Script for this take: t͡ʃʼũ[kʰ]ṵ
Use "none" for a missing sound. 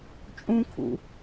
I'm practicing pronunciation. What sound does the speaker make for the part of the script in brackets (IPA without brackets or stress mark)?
kʰ